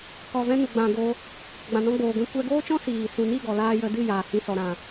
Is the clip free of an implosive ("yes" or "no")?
yes